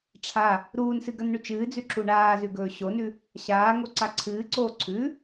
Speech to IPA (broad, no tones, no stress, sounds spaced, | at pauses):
ʈ͡ʂʰ a | ɾ uː n s ɨ ɡ ɐ n ɳ ʉ t͡ʃ ɨː d͡z ʉ ǁ u ɳ aː z ʉ ɡ ɵː ɕ o n ʉ | ɕ aː ŋ o ǀ a ǀʰ ɨː ǀ oː ǀʰ ʉ